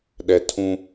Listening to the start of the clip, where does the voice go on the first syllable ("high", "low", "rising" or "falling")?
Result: low